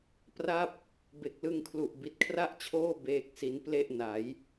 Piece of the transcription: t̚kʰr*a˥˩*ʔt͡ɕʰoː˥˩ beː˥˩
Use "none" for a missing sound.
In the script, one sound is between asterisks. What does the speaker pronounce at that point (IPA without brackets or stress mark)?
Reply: a˥˩